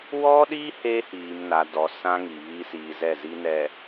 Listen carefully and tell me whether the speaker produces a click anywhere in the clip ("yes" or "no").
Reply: no